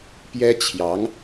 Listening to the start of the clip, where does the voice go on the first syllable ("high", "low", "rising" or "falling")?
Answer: high